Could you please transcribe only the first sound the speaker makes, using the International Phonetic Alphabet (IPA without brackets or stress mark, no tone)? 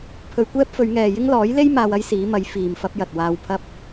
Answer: pʰ